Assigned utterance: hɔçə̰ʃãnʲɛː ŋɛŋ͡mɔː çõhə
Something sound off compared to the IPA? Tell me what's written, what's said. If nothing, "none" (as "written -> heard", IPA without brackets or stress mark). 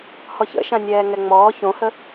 none